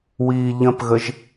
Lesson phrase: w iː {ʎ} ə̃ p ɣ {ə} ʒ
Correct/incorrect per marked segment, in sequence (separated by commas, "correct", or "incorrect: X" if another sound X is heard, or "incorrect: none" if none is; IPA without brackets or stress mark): correct, correct